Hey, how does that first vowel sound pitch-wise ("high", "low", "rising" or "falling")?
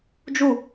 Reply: falling